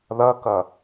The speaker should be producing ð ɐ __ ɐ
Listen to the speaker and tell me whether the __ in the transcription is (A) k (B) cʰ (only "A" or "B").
A